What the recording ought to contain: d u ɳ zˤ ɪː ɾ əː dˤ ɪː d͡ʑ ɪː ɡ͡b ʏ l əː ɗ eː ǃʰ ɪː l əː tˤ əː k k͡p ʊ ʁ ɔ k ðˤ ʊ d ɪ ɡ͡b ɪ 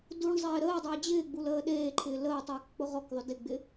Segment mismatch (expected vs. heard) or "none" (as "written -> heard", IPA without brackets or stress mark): ʏ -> u